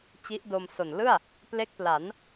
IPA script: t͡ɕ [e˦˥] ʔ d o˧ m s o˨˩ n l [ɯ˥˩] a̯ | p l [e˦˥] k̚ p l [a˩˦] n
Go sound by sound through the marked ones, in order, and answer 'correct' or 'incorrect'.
incorrect: i˦˥, correct, correct, correct

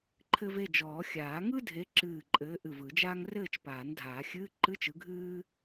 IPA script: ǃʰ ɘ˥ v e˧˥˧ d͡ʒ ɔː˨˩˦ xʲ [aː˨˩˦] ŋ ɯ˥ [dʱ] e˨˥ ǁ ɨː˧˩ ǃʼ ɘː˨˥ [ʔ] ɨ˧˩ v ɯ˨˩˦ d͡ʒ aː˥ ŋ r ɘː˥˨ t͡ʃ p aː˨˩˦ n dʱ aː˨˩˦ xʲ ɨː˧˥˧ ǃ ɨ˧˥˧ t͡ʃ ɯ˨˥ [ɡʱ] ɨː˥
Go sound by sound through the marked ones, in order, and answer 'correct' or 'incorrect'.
correct, correct, correct, correct

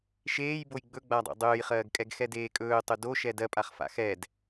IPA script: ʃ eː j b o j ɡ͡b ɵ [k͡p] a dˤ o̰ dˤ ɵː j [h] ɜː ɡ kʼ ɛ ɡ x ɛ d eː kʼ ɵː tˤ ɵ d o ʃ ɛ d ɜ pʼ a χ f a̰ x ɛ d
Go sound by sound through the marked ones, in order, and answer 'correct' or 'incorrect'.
incorrect: ɡ͡b, incorrect: χ

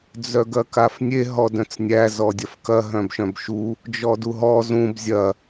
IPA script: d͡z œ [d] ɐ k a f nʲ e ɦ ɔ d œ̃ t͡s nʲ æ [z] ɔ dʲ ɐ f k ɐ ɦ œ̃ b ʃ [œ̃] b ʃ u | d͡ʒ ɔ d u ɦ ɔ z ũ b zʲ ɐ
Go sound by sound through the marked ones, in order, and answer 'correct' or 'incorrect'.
incorrect: ɡ, correct, correct

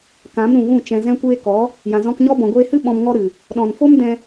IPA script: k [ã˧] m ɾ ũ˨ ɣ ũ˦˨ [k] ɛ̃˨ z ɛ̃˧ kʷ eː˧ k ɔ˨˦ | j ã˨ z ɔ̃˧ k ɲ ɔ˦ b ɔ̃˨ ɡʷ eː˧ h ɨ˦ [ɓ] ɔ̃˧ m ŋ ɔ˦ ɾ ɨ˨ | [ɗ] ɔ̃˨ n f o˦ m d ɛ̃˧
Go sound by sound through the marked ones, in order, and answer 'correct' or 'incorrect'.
incorrect: ã˨˦, incorrect: t͡ʃ, correct, correct

